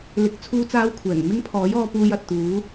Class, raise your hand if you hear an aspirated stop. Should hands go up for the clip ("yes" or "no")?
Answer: yes